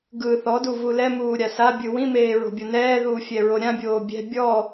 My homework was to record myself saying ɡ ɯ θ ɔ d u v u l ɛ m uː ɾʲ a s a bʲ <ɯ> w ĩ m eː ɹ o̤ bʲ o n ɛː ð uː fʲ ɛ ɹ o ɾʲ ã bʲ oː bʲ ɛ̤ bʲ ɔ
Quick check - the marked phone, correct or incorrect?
correct